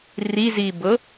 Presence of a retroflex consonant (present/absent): absent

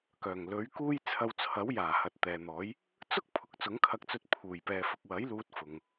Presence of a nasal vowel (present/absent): absent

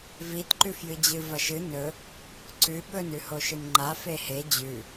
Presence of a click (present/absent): present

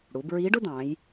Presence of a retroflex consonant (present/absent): present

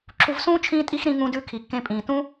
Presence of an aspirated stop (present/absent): present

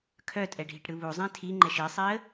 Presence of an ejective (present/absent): present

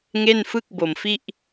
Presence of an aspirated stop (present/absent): absent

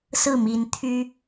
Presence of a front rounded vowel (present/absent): present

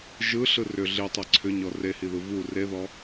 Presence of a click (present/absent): present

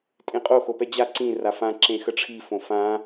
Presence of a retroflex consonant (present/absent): present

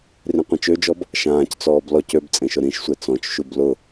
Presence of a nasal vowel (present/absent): present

